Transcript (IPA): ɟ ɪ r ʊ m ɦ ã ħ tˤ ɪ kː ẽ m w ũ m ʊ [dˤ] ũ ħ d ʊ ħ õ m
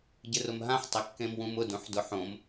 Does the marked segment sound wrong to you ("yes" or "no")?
yes